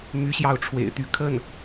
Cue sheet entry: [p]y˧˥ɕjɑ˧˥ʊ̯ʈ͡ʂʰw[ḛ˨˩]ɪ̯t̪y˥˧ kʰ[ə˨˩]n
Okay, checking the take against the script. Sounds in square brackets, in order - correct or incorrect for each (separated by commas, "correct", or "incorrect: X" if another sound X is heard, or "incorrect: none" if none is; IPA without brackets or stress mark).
incorrect: m, correct, incorrect: ə˥˩